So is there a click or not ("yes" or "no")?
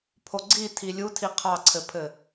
yes